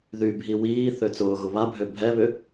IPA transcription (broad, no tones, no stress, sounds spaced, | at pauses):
ð y bʱ i w iː θ ø t͡s ʊː ɣ ʊ β a bʱ ø bʱ ɛ β ʏ